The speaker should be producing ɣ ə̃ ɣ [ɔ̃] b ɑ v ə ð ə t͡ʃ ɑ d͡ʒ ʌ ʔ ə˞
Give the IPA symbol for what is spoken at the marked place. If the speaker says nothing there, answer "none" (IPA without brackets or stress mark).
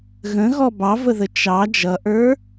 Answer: ɔ